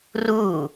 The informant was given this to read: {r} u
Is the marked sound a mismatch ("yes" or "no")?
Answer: no